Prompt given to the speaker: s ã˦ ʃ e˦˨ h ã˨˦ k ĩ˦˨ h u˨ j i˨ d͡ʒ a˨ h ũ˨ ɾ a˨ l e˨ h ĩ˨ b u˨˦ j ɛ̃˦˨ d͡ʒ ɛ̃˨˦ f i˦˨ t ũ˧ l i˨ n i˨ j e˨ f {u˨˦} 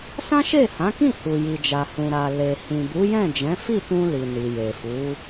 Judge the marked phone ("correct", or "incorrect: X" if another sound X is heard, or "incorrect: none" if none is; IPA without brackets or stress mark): correct